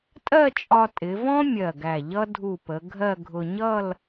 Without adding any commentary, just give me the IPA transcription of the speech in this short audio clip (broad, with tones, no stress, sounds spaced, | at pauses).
tʼ ɜ˥˧ t͡ʃʼ ɒ˧ tʼ ɪ˩˧ v ɔ̃˥ mʲ ɜ˧˩ ɡ æ˧˩ ʎ ʌ˥ dʱ u˧˩ p ə˩˧ ɡʱ ɜ˥˧ ɡʱ ʊ˧ ɲ ʌ˥˧ l